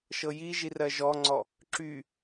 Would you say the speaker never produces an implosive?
yes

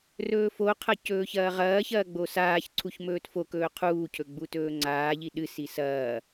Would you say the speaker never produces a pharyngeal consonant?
yes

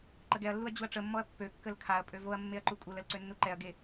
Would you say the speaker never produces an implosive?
yes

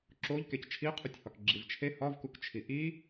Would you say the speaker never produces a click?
no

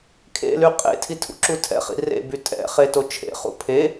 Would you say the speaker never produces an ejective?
no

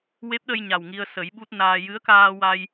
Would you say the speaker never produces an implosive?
no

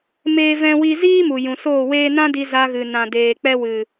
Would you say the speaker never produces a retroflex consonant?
yes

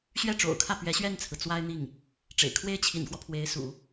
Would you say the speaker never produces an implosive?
yes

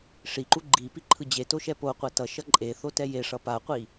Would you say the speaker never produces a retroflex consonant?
no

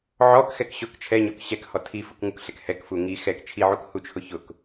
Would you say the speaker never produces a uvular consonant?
yes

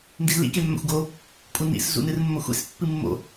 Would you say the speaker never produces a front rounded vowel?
yes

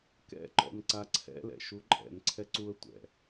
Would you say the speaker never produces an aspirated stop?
no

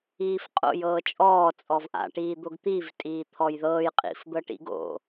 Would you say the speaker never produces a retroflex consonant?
no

